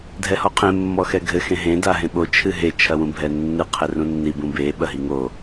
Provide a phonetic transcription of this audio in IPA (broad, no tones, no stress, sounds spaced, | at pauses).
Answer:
dʱ ɛ h ɔ qʰ ẽ mː ɔ x ɛ ɡʱ ɘ x ẽ ɦ ẽ d a ɦ ẽ ɓ o t͡ʃʰ ɨ ɦ e t͡ʃʰ ɐ w ũ bʱ ɛ nː ɨ qʰ ɛ r ũ nː i b ũ b e ɓ ɐ ɦ i ŋ o